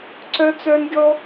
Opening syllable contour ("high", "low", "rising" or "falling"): high